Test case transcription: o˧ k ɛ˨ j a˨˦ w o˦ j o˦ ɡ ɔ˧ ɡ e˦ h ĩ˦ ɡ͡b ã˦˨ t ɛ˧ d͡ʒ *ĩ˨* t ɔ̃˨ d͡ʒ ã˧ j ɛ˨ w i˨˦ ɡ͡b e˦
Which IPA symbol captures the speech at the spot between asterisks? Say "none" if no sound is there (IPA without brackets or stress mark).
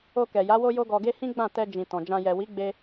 ĩ˨